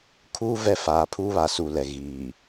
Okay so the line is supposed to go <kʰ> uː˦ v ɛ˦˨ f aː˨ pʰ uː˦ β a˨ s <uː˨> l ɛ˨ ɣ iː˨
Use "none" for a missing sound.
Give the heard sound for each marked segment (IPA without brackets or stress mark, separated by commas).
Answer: kʰ, u˨